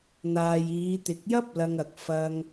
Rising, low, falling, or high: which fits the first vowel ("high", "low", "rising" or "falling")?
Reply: low